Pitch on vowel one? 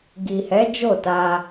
low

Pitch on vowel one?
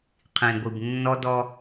low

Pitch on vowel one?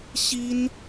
high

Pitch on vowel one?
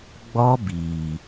high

